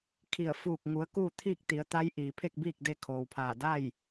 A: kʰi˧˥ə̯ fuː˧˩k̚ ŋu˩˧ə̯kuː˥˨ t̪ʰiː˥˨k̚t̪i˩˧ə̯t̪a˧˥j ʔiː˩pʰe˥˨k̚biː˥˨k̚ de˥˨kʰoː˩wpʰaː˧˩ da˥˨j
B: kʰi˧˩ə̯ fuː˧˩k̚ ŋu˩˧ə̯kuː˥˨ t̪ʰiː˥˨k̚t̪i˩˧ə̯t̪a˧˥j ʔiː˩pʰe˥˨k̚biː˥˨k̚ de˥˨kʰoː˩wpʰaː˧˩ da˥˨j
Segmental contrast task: B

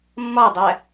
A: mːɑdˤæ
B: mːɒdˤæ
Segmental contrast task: B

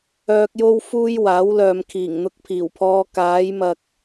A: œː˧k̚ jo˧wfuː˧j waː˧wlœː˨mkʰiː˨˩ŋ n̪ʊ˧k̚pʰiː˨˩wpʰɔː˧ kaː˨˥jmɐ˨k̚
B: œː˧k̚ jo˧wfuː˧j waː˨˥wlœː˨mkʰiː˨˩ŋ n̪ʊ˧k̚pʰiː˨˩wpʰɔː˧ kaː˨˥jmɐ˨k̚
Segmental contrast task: B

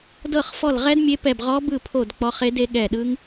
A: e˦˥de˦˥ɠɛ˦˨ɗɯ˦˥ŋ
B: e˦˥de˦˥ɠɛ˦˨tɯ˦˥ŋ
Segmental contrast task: A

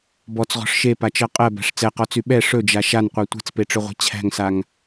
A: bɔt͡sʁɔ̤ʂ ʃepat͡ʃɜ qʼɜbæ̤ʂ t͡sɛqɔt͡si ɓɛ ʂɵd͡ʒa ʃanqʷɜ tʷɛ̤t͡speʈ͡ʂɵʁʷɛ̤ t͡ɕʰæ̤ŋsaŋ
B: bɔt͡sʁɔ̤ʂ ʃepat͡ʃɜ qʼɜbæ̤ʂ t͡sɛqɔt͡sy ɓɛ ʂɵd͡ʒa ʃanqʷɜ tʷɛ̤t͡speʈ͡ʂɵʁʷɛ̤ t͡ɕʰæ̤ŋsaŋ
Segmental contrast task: B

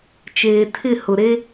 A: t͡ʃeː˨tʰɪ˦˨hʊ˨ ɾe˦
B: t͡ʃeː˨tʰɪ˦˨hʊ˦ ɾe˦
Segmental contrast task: A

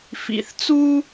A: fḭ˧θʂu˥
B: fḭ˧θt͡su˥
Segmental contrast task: B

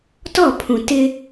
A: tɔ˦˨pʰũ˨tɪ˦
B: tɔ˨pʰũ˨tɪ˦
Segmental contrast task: A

